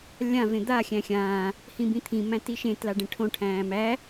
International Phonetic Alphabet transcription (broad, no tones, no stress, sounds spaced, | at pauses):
lʲ ã v ẽ d̪ a xʲ æ̃ xʲ ãː | h ĩ b ĩ t̪ʰ ĩ m æ̃ t i ʃ ẽ t l a ɖ ẽ ʈʰ õ ʈʰ æ̃ː m æ